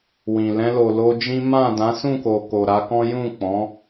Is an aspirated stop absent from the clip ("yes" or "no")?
yes